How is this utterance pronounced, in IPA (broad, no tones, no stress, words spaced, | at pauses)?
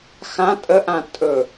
xã tʼəʔã tʼɵ